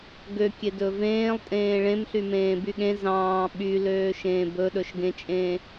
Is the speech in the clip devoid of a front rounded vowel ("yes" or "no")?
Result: no